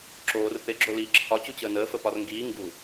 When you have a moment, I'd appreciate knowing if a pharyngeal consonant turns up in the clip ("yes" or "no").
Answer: no